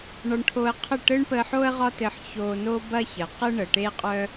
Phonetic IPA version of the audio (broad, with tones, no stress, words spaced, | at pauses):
ɳɒ˧ɳʈʰo˧ə̯qʰə˥˩ ʈɘ˥ɳpə˧ħo˥ə̯ ʁɒ˥tɘ˧ħ ço˧no˥ bɐ˥çə˩ qɘ˥ɳə˩ ʈe˥qʼœ˥